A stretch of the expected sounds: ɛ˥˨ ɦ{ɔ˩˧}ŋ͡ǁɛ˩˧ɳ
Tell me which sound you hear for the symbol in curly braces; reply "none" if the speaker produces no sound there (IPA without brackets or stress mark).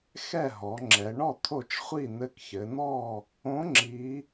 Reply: ɔ˩˧